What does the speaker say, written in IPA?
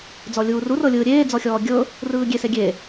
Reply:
d͡z ɔ lʲ uː r u r ɤ lʲ ɯː ɾʲ eː d͡z ɔ xʲ ɔː ɡʲ ɤ | r ɯː ɡʲ e s e ɡʲ e

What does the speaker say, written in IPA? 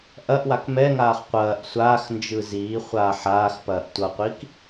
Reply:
ʔ ɐ ʔ w a k m ɛ ŋ aː χ qʷ ɐː ʔ sʷ aː x n d͡ʒ ɯ z iː χʷ aː ħ aː x p ɐː ʔ tʷ ʌ qʷ i k

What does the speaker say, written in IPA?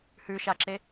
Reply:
h ʉ ʃ a ǁ e

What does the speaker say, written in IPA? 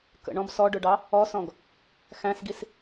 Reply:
k ə̰ ɳ ɔ̃ b s ɔ ɖ ʊ ɖ ɑ | ɔ s ɔ̃ ɡ | x æ̃ s ɡ i s

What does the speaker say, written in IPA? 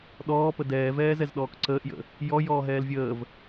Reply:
ɗ ɔː p ə d ɛː v ɛː z ɛ z ɗ ɔː k ǀ əː ʔ j ə̰ | j ɔ j ɔː ɦ ɛː l vʲ əː v

